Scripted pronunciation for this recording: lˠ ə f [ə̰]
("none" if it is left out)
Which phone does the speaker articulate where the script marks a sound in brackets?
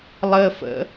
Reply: ə̰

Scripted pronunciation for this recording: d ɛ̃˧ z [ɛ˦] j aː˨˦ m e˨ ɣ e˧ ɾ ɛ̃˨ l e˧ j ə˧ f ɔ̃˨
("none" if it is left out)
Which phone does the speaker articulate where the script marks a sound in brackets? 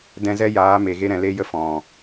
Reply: ɛ˦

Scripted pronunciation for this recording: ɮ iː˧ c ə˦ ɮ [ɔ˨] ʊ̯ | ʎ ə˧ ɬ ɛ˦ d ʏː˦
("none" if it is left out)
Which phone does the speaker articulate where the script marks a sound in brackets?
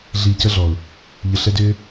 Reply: ɔ˨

